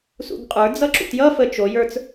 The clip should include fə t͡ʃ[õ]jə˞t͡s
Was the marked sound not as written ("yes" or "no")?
yes